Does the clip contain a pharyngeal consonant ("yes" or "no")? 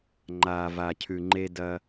no